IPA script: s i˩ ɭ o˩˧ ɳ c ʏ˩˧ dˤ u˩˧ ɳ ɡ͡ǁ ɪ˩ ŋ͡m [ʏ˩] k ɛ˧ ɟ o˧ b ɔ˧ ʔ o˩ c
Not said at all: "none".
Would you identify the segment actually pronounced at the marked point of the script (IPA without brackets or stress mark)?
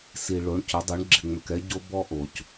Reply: ʏ˩